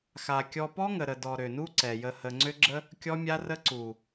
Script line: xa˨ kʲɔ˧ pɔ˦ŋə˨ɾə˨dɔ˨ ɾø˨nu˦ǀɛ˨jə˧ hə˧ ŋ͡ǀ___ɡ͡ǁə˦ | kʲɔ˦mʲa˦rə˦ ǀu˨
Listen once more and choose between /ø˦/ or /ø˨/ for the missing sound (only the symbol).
ø˦